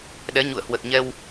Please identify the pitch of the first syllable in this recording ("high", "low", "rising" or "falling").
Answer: rising